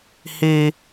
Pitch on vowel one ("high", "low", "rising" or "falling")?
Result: high